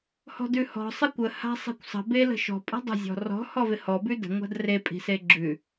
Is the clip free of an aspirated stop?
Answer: yes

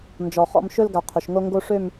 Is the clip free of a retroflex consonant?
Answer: no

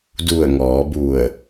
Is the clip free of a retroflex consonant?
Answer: yes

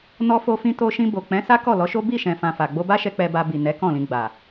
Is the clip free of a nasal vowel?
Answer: no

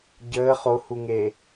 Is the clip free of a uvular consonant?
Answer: no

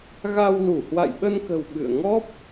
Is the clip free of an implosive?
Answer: no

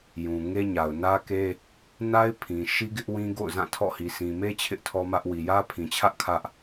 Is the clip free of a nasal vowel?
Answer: no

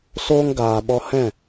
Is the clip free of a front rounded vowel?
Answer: yes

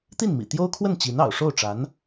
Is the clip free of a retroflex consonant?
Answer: no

